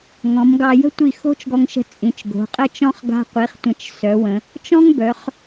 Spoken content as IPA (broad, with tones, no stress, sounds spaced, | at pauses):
ŋ ɔ̃˩˧ m ɡ ɑ˧ j ə̤˥ tʷ i˧˩ x o̤˥ t͡ʃ ɡ ɔ˧ ŋ ʃ ə̤˧ t͡sʼ ĩ˩˧ t͡ʃ ɡ o̤˩˧ qʼ ə˥˧ t͡ʃ ɔ̃˥˧ χ ɡ a̤˧ qʷ i˩˧ χ tʷ ə̃˧˩ t͡ʃ s œ˩˧ w ə̃˩˧ | t͡ʃ ɔ̃˥ ŋ b œ˩˧ χ